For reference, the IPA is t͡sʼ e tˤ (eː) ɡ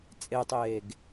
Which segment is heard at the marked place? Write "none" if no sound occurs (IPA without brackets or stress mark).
eː